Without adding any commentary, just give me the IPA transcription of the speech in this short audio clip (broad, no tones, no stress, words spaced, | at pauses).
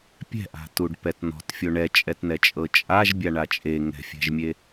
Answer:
pʲɛ̤ʔa̤tuɖpɛt n̪ɔ̤tfʲo ɳɛt͡ʃʼɛtn̪ɛt͡ʃʼɤ t͡ʃʼaʒbʲaɳa t͡ʃʼe ŋɛ̤fʲɛ̤ʒmʲe